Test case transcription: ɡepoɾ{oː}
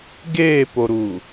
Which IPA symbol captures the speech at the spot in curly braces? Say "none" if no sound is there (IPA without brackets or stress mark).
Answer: uː